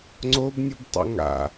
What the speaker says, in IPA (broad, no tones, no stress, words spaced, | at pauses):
ŋ͡ǀobnʲɯbtˤa̰ ŋa̰